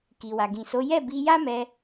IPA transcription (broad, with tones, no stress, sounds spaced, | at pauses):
k i˨ w a˨ ɡ ĩ˨ s o˨˦ j ɛ˦˨ b i˧ j a˦ m ɛ˧